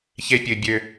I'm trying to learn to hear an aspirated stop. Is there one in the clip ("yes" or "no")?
no